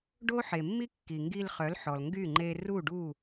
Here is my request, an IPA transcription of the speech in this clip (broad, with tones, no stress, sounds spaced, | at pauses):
ɖ o˦ ħ e˨ mː i˦ kː i˨ ŋ ɡ i˧ l χ œ˨˦ l ħ ɔ˨ l ŋ ɡ y˦˨ ŋ͡ǃ e˧ r u˦˨ ɖ u˦˨